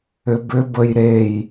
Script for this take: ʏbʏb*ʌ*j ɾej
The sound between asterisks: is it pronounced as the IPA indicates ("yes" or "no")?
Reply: no